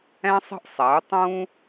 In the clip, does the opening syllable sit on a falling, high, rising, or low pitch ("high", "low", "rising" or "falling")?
high